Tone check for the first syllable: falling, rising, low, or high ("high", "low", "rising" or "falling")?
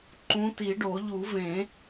rising